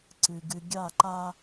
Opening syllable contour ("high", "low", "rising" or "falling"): low